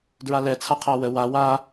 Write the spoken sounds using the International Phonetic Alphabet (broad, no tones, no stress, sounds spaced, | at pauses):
d ɹ a l ɛ t͡sʰ a qʰ a w ə w a w a